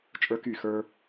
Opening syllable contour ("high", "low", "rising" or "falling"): high